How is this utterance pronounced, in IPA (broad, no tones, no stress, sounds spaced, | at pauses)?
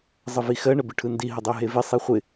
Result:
zˤ ə v i x ɜ ɳ ə b ɪ ʈʰ ɯ n d i ɦ ə dˤ o ɦ e v ɪ sˤ e χʷ ɪ